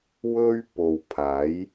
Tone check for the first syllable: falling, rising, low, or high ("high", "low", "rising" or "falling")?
high